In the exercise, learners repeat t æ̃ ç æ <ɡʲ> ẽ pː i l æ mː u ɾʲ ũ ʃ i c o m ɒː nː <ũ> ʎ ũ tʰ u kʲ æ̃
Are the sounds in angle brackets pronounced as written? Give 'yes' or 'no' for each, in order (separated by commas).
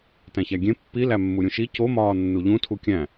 yes, no